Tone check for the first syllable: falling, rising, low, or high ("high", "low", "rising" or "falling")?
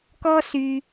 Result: high